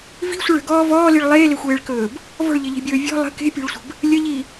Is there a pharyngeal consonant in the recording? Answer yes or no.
no